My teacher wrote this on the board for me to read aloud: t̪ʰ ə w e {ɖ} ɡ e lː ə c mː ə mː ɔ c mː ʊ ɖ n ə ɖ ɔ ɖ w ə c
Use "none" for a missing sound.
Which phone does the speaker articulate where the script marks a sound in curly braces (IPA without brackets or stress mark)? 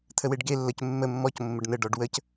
ɖ